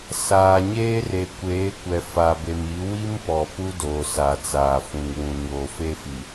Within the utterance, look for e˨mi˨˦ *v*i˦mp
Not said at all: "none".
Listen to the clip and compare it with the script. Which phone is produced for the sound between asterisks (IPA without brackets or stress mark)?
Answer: w